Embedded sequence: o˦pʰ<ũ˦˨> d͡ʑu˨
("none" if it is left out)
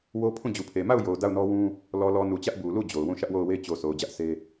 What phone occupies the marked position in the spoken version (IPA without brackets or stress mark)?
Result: ũ˦˨